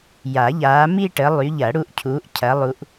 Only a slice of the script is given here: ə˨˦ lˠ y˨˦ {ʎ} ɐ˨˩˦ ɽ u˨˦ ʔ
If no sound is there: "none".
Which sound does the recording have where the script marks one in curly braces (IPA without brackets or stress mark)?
ʎ